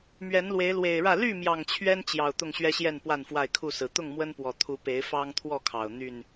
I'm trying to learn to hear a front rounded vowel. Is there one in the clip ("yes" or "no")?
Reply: yes